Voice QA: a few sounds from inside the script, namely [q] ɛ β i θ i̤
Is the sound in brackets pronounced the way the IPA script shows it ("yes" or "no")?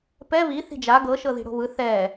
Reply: no